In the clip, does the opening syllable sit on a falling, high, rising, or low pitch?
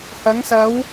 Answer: rising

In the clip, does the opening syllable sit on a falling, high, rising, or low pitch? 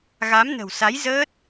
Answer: rising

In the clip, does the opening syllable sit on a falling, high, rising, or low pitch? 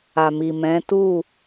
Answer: low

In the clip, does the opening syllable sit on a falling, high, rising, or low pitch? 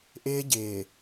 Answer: high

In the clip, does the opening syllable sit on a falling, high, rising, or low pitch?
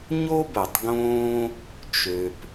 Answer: high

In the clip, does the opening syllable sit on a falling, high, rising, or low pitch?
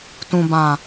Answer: low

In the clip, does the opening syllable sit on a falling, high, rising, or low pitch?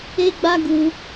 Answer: high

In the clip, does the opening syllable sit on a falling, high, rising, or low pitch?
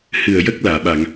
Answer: low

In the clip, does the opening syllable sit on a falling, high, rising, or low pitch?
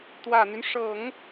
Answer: low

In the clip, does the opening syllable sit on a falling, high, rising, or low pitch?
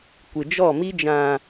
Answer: low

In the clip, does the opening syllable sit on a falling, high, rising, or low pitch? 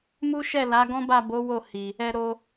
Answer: high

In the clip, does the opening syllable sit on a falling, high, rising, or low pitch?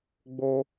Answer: high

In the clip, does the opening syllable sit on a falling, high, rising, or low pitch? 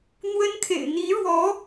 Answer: high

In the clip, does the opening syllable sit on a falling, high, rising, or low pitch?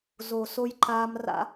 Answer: low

